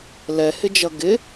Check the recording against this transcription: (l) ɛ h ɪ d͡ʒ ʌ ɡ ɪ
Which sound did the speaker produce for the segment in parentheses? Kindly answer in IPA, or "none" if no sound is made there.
l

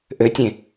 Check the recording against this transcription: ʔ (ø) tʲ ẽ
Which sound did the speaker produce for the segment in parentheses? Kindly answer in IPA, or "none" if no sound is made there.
ø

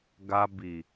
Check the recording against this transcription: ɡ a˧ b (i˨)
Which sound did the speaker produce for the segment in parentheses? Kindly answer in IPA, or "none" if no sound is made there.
i˨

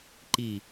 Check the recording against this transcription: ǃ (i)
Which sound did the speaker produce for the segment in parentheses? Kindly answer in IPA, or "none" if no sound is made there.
i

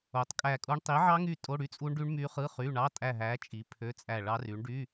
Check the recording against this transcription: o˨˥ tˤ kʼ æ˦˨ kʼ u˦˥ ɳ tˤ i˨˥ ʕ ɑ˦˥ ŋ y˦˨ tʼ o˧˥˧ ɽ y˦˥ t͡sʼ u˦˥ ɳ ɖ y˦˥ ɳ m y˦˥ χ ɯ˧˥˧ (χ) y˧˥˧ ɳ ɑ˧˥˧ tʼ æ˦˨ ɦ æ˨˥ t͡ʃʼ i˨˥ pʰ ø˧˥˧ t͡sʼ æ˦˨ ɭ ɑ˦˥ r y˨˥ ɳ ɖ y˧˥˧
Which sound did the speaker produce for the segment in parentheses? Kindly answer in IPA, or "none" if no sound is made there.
χ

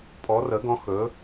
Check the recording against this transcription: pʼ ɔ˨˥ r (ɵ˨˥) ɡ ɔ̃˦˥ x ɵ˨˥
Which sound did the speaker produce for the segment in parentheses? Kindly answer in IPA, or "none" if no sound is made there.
ə˨˥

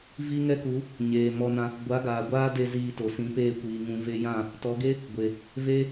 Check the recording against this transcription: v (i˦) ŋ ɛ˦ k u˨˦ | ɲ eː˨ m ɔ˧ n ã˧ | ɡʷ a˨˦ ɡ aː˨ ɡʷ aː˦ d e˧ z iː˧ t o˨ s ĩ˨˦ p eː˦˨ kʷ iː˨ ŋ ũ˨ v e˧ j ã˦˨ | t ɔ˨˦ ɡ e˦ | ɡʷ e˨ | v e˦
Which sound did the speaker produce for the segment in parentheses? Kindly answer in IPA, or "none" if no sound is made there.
i˦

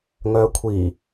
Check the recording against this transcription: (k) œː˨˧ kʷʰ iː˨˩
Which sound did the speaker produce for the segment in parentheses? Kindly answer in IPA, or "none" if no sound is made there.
ŋ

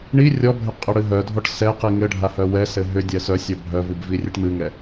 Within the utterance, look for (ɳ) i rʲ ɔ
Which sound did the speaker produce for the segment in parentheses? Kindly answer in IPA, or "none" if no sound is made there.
ɳ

